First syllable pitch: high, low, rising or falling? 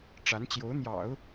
rising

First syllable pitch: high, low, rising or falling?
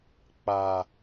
low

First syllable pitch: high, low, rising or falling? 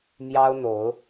high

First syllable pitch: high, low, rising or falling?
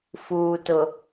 low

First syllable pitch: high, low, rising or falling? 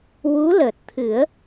rising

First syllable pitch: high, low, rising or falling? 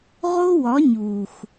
high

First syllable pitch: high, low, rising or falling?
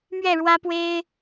falling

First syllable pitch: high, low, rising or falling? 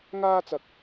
high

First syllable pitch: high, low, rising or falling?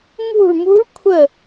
falling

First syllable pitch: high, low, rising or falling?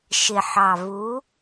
low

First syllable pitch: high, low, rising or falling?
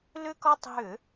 high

